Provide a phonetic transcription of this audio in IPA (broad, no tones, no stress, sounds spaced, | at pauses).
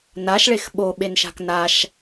n a ʃ ɭ e x ɓ o ɓ e n ʃ a̤ k n a ʃ